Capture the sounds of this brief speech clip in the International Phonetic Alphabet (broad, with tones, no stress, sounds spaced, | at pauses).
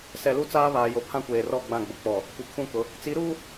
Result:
s ɛ˨ l u˦ t͡s aː˦ β aː˨ j o˨ pʰ ã˦ kʷ eː˨ r ɔ˦˨ ɡ͡b ã˦˨ ɡ͡b ʊ˨ k͡p ɔ˨ | kʷ i˨ kʰ ũ˦˨ k ʊ˨˦ | t͡s i˨˦ ɾ uː˦